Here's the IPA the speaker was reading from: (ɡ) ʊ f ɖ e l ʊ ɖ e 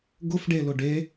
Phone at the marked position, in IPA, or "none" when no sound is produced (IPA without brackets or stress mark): ɡ